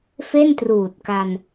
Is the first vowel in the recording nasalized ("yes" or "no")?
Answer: no